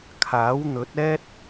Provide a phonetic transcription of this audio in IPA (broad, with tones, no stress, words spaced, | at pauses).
kʰaː˨˥wn̪ɵ˨˥t̚ ɛː˥t̚